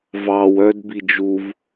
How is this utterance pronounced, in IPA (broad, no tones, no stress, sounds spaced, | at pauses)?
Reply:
v ɑ w œ d b i d͡ʒ u v